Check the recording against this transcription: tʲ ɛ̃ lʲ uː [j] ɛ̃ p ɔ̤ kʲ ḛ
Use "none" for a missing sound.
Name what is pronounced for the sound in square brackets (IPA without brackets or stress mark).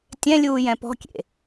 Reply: j